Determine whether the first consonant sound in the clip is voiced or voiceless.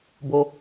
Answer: voiced